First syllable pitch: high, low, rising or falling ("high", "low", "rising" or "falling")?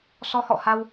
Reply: rising